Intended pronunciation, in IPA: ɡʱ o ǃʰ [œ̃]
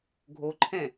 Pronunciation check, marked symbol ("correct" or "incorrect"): incorrect